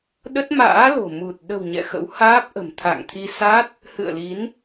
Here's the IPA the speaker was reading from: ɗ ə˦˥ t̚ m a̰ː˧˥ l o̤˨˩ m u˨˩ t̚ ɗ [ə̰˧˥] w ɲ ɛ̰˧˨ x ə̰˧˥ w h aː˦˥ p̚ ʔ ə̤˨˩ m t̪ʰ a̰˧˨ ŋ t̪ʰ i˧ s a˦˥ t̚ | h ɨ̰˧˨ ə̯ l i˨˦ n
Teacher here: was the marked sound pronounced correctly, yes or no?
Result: no